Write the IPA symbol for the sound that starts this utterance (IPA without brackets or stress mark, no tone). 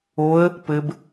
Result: o